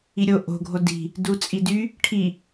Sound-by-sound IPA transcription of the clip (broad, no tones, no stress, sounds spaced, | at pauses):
i ɾʲ o ʔ o̤ ɡʱ o d i̤ | d u t͡sʼ i d y | ʈʰ i